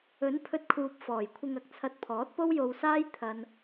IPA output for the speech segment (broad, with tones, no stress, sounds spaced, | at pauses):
ɵ˨˥ n pʰ ɵ˧ t̚ kʰ uː˨ p̚ f ɔː˨˩ j kʷʰ ɪ˧ ŋ ɐ˨ k̚ t͡sʰ ɐ˧ t̚ pʰ ɔː˨˥ t̚ p o˥ w j o˧ w s aː˥ j t̪ʰ ɐ˥ n